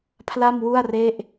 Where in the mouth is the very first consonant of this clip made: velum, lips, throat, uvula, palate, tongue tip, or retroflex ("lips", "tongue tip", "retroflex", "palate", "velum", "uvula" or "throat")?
lips